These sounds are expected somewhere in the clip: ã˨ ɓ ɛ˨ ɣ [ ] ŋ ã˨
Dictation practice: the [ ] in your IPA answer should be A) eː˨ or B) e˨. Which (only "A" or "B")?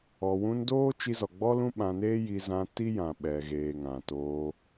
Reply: A